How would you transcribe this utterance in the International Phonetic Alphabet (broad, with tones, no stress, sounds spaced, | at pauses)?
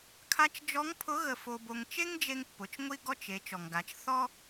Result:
kʰ a˧˥ t͡ʃ d͡ʒ ɔ˧˥ ŋ pʰ ʊ˧˥ ɣ ə˧ f o˧ b o˧ ŋ t͡ʃ e˥ ŋ d͡ʒ e˧ ŋ pː ʊ˩˧ t͡ʃ ŋʷ i˥ ɡ ɔ˥ t͡ʃ e˩˧ t͡ʃ ɔ˩ ŋ ɡ a˩˧ t͡ʃ θ ɔ˥